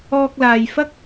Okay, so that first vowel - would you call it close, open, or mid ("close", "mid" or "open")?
mid